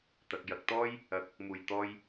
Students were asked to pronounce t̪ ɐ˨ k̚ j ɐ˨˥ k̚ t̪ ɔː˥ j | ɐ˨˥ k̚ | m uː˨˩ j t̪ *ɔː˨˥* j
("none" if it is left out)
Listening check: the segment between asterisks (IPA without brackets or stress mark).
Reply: ɔː˧